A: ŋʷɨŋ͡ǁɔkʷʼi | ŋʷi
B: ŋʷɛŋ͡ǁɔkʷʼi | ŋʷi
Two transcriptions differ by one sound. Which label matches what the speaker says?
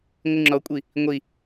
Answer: A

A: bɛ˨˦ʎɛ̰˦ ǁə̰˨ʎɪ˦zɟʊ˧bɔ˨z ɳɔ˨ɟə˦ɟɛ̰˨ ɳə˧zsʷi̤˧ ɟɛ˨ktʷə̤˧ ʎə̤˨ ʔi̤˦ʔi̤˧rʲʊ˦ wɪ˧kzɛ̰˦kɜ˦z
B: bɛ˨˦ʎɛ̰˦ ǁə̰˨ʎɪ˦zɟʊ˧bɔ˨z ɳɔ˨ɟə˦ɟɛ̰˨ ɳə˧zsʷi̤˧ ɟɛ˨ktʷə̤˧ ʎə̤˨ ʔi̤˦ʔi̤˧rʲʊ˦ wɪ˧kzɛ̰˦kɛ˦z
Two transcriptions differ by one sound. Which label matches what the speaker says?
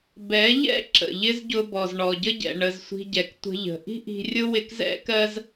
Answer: A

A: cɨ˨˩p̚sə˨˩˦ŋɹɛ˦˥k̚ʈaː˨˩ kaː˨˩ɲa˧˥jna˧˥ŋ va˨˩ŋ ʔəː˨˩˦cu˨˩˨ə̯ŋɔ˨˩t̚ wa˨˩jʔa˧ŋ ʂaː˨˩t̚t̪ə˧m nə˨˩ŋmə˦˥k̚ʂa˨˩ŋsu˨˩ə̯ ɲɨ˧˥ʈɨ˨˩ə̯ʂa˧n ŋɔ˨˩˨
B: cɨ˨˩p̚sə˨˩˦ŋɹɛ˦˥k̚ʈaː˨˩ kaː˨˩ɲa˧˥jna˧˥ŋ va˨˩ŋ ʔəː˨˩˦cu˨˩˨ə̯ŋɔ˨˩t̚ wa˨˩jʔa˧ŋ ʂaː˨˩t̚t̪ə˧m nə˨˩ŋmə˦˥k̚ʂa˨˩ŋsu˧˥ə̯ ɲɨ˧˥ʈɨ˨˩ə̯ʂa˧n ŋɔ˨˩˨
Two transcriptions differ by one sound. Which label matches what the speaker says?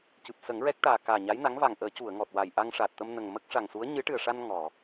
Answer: B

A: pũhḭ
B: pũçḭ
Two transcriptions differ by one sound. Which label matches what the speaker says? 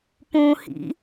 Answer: A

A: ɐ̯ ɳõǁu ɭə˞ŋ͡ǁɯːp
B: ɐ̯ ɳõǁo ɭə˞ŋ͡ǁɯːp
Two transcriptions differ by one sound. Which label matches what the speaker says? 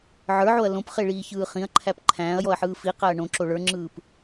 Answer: B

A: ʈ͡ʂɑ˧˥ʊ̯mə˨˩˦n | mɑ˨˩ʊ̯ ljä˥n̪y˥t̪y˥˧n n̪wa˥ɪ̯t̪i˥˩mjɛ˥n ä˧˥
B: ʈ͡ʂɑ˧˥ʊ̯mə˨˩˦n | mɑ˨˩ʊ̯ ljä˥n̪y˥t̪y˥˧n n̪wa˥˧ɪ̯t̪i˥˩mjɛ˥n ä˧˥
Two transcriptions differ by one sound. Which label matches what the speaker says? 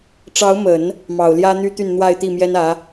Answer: B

